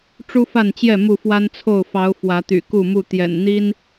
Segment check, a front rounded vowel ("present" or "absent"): present